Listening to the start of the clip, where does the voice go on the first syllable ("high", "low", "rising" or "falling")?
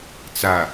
low